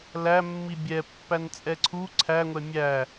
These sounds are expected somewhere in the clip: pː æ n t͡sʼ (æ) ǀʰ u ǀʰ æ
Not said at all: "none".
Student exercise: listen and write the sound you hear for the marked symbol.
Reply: ɛ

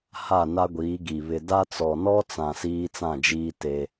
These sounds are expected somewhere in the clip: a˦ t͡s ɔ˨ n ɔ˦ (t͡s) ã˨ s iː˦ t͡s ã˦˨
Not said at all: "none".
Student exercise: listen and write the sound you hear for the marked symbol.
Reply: t͡s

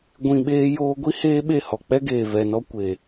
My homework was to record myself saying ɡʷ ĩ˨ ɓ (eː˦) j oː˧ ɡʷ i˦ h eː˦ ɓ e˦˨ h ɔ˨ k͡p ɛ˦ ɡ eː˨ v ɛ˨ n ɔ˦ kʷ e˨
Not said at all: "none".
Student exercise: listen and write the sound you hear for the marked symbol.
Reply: eː˧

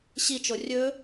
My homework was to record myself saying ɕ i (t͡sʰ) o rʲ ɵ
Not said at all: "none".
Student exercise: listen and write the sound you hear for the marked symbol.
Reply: t͡ʃ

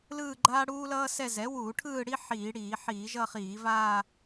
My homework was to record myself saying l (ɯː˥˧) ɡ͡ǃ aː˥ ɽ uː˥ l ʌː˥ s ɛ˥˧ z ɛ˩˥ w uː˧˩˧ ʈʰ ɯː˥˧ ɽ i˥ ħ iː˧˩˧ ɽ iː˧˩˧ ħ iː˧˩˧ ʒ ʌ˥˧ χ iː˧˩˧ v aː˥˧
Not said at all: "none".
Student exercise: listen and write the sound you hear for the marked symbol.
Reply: ɯː˥˧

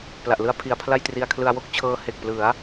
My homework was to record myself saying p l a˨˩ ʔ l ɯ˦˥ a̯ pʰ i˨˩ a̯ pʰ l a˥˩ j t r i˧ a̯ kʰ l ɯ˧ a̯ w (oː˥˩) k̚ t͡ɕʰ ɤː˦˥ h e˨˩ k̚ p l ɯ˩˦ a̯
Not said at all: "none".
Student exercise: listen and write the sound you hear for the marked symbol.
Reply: o˥˩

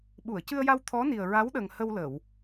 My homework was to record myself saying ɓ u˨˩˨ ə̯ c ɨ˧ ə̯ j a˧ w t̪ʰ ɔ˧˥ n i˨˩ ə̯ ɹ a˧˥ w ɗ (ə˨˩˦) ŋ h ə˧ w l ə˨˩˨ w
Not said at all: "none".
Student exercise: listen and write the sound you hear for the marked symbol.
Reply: ə˨˩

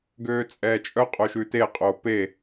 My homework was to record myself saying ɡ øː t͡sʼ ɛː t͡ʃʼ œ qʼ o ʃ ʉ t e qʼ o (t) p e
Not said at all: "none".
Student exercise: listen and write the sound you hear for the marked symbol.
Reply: none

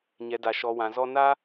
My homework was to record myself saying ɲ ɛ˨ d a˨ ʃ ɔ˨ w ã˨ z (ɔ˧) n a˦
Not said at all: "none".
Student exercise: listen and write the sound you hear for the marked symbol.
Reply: ɔ˧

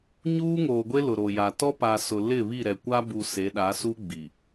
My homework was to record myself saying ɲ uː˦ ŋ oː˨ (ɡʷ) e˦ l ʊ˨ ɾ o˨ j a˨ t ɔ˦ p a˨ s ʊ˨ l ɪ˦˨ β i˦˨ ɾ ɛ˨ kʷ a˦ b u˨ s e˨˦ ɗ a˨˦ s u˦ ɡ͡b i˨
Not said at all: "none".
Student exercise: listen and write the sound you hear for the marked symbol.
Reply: ɡʷ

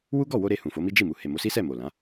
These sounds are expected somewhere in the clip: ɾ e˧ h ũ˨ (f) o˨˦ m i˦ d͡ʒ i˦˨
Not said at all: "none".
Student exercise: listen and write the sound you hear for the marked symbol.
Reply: f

